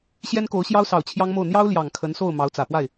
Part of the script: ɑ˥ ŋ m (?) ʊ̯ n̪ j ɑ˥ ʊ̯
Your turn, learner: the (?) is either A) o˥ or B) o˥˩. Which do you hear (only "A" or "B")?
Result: B